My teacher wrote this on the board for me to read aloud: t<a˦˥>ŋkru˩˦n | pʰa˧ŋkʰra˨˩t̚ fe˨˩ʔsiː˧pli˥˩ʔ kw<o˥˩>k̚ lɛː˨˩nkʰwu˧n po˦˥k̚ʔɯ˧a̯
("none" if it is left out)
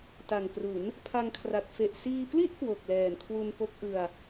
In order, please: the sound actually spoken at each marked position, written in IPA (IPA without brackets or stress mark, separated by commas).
a˨˩, o˨˩